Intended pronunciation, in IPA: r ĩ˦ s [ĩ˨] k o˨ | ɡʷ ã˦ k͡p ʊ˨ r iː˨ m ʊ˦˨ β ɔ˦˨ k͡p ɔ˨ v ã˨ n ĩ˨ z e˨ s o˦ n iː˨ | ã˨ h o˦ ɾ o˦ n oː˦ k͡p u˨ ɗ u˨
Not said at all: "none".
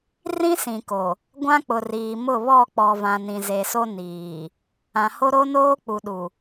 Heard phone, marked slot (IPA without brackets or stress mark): ĩ˨